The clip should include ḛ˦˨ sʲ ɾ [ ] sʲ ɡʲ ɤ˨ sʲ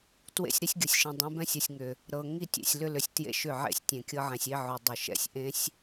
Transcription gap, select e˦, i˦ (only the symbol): i˦